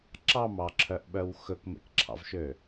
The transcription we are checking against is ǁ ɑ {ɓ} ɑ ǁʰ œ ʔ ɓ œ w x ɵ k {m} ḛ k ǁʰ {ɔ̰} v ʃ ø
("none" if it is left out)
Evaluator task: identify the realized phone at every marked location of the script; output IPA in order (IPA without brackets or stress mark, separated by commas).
m, m, ɑ̰